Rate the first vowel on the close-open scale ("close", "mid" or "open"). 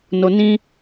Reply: mid